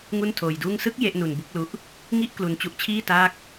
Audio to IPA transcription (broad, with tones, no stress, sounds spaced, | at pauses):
ŋ u˥˩ n tʰ oː˧ j d uː˥˩ ŋ s ɯ˦˥ k̚ j e˦˥ ʔ n u˧ n b u˦˥ k̚ l u˦˥ ʔ | ŋ i˥˩ ʔ k l u˧ n t͡ɕ u˦˥ ʔ t͡ɕʰ iː˥˩ t aː˥˩ k̚